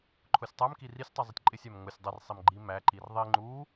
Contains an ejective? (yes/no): yes